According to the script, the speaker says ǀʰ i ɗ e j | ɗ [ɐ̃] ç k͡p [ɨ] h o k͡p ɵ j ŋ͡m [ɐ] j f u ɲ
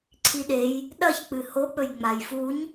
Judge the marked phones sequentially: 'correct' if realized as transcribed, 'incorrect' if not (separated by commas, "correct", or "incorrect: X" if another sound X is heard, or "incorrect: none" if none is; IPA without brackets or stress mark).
incorrect: ɐ, correct, incorrect: a